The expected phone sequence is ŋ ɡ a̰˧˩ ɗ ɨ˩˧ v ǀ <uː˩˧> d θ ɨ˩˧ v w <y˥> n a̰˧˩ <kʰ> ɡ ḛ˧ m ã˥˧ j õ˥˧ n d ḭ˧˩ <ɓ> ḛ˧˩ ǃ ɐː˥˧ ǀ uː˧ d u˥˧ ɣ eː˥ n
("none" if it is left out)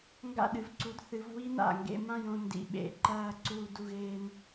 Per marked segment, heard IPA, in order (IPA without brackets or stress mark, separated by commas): u˩˧, i˥, ŋ, ɓ